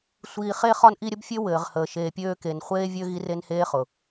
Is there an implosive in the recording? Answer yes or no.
no